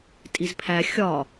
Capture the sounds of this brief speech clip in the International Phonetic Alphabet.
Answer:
tʼizpʰæ xʲɒ

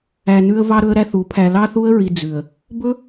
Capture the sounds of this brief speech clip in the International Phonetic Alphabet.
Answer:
æ˨ nʉ˧ə̯ vɑ˧ɾɵ˧ə̯ ɾæ˦θu˨˦pʰæ˧ lɑ˦θu˦ə̯ɹi˧ d͡zʉ˨ə̯ | bɵ˦

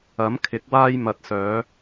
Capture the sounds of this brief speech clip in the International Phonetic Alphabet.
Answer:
ɐ˨˥mkʰɪ˨˥k̚ waː˧jmɐ˨t̚ sœː˨˧

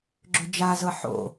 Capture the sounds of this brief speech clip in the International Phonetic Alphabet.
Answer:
ɡ͡ǁʏd͡ʒazɤ ħo̰

